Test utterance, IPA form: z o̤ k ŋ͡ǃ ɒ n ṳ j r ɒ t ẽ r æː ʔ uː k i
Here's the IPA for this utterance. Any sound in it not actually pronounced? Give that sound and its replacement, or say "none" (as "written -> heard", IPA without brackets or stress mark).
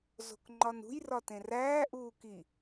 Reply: none